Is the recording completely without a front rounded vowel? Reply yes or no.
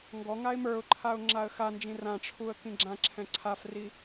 yes